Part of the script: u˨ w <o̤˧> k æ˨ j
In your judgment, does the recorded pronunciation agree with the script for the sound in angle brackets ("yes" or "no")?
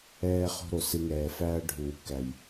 no